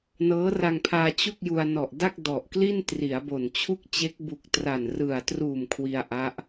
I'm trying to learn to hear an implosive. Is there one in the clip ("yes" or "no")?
no